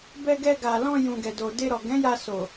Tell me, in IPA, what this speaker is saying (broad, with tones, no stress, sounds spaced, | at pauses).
b ɛ˧ ɡ ɛ˧ ɡ a˨ l ɔ̃˧ j ũ˨ ɡ ɛ˨ d o˨ d e˧ ɾ ɔ˨ ɡ ɛ̃˨˦ j a˧ s o˨